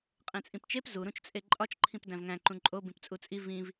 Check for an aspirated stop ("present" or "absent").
present